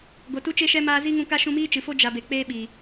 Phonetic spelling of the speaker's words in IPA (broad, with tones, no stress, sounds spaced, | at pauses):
ɡ o˨ t u˦ t͡ʃ e˦ ʃ ɛ˦ m aː˧ z i˦ ŋ ũ˧ k a˦ ʃ ũ˧ m iː˦ t͡ʃ ɨ˨ f o˦ d͡ʒ a˧ b e˨ k͡p eː˦ ɓ i˨